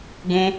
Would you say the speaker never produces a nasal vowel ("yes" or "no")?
no